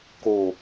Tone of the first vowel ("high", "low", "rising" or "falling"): low